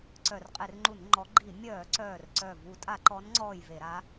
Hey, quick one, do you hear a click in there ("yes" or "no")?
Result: yes